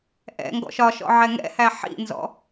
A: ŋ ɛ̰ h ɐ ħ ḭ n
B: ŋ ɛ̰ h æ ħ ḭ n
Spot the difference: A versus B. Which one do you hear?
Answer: B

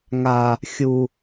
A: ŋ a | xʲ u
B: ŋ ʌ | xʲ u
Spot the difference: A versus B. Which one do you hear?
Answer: A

